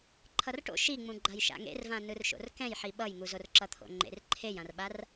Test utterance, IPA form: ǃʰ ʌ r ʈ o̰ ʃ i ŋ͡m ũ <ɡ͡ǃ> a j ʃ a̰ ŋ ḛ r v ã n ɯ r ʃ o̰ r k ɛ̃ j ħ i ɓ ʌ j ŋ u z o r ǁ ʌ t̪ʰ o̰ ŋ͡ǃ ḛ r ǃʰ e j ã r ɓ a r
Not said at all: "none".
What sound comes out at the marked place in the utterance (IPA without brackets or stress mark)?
ɡ͡ǃ